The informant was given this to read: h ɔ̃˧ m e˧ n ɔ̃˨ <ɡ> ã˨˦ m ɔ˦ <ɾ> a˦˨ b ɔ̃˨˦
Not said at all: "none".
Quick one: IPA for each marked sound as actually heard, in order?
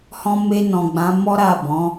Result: ɡ͡b, ɾ

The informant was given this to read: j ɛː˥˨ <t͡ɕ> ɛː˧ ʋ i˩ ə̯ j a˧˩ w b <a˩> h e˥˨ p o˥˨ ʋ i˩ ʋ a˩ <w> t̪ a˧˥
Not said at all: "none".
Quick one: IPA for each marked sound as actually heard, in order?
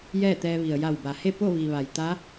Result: t̪, a˩, j

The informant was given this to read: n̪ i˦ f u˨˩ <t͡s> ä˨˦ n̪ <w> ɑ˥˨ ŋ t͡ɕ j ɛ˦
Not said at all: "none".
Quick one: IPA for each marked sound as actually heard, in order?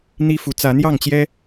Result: t͡s, j

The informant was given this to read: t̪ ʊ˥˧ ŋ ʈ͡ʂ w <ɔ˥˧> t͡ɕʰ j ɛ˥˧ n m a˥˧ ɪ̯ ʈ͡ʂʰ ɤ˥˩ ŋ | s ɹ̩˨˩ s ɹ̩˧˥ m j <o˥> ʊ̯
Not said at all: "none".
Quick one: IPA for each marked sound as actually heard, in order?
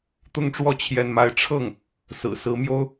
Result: ɔ˥˧, o˥

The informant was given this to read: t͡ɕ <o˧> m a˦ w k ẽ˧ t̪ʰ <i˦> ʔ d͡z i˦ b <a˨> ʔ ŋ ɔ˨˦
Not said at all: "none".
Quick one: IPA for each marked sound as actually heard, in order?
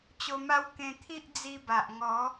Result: o˧, i˦, a˨

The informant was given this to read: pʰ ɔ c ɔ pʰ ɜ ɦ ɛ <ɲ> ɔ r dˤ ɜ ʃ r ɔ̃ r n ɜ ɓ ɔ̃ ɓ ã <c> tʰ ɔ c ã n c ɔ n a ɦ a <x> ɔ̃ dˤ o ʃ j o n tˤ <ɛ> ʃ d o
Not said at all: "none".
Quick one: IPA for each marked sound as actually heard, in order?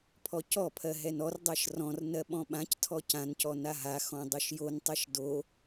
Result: n, c, x, ɛ

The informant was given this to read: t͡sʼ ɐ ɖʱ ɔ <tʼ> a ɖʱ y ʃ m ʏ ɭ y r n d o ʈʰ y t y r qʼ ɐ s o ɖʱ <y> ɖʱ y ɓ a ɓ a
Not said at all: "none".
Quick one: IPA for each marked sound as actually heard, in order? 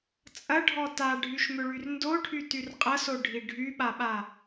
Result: t, i

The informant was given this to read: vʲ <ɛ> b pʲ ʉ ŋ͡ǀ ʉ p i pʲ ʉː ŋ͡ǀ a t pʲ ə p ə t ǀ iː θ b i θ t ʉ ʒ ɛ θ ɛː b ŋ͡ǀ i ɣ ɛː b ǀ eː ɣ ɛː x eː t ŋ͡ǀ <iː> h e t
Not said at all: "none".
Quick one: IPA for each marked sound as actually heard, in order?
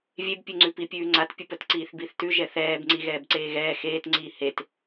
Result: e, iː

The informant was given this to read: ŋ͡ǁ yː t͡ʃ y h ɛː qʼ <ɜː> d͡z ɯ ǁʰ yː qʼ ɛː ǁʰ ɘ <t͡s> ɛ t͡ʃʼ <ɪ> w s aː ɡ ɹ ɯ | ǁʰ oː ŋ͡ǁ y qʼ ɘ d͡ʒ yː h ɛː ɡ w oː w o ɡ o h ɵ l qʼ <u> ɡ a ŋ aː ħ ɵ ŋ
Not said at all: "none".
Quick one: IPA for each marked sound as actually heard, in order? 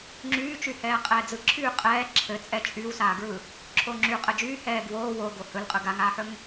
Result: ɛː, t͡sʼ, y, ɯ

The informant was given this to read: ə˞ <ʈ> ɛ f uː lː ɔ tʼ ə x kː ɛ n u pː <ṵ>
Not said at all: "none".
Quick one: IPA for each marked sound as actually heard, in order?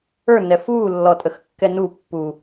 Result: n, u

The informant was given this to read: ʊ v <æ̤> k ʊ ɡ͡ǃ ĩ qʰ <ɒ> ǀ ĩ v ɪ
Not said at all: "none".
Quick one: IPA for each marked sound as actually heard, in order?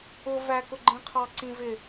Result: æ, ɑ

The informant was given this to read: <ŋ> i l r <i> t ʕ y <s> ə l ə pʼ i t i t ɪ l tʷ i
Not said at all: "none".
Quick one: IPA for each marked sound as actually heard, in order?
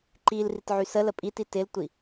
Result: ǃ, i, s

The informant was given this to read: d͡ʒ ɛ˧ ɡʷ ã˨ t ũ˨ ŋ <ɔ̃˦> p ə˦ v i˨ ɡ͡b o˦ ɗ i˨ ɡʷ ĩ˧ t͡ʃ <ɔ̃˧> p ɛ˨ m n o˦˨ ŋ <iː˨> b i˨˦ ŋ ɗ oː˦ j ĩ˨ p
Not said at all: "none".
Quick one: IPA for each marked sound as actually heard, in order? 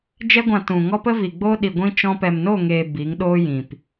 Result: ɔ˦, ɔ̃˧, eː˨

